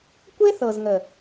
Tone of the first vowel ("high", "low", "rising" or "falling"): high